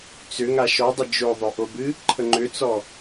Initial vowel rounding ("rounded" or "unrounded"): rounded